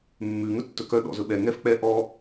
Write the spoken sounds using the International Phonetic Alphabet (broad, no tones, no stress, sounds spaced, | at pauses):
mː ʉ ŋ ɵ tː ɵ k œ ɗ ɔ̰ z ɵ ɓ ɛ ŋ ɛ f k͡p ɛ ʔ ɔ